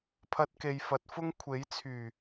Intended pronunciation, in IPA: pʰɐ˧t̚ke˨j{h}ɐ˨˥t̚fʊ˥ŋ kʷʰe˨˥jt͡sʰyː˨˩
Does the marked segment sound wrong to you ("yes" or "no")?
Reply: yes